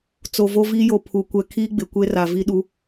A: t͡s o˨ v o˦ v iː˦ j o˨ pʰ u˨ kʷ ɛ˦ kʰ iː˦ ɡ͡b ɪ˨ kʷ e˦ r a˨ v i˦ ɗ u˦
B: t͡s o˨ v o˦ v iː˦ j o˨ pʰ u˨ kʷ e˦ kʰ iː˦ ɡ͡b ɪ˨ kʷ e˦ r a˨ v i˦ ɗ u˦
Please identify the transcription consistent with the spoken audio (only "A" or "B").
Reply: A